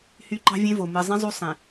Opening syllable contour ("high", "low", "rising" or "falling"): high